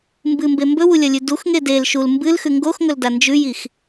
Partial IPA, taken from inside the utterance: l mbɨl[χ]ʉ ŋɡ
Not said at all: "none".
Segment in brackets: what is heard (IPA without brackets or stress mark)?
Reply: x